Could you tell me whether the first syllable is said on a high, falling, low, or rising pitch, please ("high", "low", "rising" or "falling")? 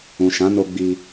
low